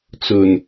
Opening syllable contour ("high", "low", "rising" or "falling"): low